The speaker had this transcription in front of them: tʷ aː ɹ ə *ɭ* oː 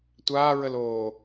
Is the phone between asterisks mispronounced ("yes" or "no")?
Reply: yes